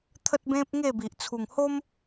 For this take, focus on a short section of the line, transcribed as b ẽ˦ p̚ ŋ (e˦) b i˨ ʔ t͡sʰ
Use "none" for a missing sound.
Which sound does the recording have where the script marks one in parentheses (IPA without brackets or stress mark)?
e˥˧